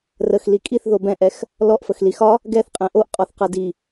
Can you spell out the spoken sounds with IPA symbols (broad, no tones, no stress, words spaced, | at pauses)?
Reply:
rəx likʼiθ ðobɛ̃ʔɛx | lɔʔfəxli xɒ | ɡɛθqʼɛ̃ ʔoʔqʼɔθqɤ di